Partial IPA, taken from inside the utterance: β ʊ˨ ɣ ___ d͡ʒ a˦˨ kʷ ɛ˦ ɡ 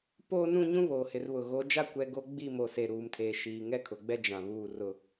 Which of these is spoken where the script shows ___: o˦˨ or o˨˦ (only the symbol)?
o˨˦